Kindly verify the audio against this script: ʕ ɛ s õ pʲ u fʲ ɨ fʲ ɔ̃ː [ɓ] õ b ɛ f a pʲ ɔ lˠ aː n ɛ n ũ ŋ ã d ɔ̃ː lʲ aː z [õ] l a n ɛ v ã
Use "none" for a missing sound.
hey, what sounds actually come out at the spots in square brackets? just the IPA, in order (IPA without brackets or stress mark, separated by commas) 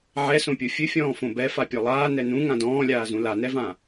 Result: f, ũ